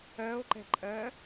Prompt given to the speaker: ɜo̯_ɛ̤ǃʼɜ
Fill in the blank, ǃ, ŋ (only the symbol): ǃ